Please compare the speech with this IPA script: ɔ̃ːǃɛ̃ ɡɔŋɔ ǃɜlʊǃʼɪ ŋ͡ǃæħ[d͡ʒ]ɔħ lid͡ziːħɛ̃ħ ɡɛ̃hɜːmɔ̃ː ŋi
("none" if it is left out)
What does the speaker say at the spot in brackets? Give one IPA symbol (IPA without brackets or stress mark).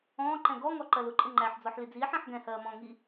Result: d͡z